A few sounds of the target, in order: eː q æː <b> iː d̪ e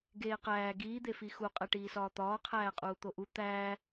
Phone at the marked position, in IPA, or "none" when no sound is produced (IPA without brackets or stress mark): ɡ